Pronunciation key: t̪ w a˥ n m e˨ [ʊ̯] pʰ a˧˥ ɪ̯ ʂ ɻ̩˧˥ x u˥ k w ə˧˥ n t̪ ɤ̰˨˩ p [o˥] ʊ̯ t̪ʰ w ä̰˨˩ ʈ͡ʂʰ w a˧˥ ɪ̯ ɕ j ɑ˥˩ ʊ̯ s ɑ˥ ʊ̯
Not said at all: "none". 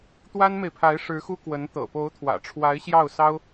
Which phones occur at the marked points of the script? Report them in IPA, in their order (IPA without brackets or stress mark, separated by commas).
ɪ̯, o˧˥